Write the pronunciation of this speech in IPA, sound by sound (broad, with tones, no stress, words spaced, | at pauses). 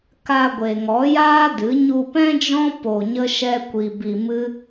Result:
ka˧ɡʷe˨ ŋɔ˨˦jaː˦dɨ˨˦ ɲu˧pɛ̃˦d͡ʒɔ̃˦ po˧ɲə˦ʃɛ˦kʷi˧ bi˧mɨ˦